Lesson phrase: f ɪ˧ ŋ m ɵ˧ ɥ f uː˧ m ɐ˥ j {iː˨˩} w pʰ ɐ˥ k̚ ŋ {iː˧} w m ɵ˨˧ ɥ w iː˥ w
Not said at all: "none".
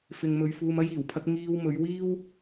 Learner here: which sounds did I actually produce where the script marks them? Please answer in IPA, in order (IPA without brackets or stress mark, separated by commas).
iː˨˩, iː˧